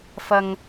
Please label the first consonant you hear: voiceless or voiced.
voiceless